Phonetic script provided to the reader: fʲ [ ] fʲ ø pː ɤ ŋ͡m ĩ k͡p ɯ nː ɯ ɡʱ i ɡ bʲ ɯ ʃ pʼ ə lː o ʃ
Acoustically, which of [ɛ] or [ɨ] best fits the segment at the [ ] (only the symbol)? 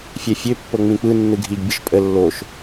ɛ